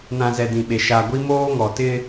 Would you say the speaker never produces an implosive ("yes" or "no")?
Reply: no